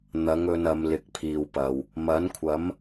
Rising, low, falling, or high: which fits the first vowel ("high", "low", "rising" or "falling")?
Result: rising